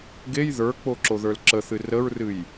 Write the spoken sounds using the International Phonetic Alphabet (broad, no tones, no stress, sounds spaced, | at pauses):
ɡ e j ð ə˞ k͡p o ǁ o ð ə˞ l ǁ ə θ ɨ r ə ɹ r ɨ j